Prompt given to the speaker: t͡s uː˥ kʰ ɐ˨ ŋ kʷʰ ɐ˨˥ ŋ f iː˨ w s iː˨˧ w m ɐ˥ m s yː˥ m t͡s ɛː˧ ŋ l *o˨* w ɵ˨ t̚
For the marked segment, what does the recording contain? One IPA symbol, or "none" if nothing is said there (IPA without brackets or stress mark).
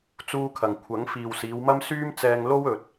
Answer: o˥